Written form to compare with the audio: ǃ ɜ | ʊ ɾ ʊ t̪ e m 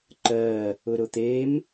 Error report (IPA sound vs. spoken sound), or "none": none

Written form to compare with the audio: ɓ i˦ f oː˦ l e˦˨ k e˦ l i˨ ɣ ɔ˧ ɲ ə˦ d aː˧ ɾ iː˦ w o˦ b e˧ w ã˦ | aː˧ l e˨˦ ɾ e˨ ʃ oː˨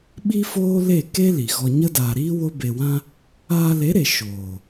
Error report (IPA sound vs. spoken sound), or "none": none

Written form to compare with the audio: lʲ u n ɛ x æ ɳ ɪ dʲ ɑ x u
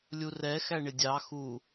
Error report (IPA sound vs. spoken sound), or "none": n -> r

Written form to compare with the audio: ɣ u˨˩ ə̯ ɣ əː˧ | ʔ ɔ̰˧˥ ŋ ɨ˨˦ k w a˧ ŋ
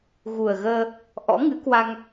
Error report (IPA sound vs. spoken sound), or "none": none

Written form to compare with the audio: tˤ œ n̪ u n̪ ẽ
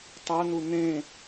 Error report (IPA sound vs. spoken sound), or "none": none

